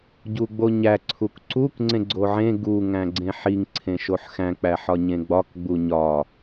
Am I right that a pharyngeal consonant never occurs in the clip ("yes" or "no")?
no